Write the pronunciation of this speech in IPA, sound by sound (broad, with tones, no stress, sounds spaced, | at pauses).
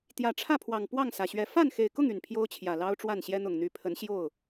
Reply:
t̪ j ä˨˩ ʈ͡ʂʰ ä˥˨ pʰ w ɑ˨˩ ŋ p w ɑ˥˨ ŋ s ä˩ ɕ ɥ ɛ˨˦ f a˥˨ n x e˨˩ ɪ̯ k ʊ˥˨ ŋ y˨˩ n pʰ j o˦ ʊ̯ t͡ɕʰ j ä˨˩ l ɑ˦ ʊ̯ ʈ͡ʂ w a˥˨ n ɕ j ɛ˦ n̪ ʊ˨˩ ŋ n̪ y˨˦ pʰ ə˨˦ n ɕ j o˥˨ ʊ̯